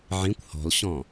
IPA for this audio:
ʕ ĩ kʷ h ɔ̤ l ɕ ɔ̃

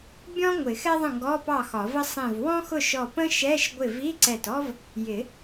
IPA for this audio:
bʲ ɔ̃˥ ŋʷ ɪ˨˩˦ x ɛ˥ ðˤ ə̃˥˩ ŋ ɡ ɔ˧˥˧ p ɑ˥˩ x ɒ˨˩˦ v ə˥ sˤ ĩ˧˩ v w ɔ̃˥ x ʊ˥˩ ʃ ɔ˧˩ p ə̃˥ ʃ ɛ˧˥˧ ʃ ɡʷ ɪ˥˩ v i˧˥˧ ǀ ɛ˧˩ t ɔ˥ v | j ɪ˨˩˦

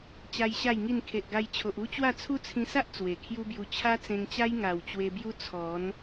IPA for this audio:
t͡ɕ a˦ j ɕ a˥˧ j ŋ i˥˧ n kʰ e˨ ʔ ɡ a˧ j t͡ɕʰ o˨ ʔ u˦ t͡ɕ w a˥˧ t͡sʰ u˦ t͡sʰ ĩ˧ s a˦ ʔ t͡s w e˨˩ kʰ j u˦ b j u˧ t͡ɕʰ a˦ t͡s ẽ˧ ŋ t͡ɕ a˦ j ŋ a˨˩ w t͡ɕ w e˧ b j u˦ t͡sʰ ɔ˨˦ n

